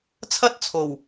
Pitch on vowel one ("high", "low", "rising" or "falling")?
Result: high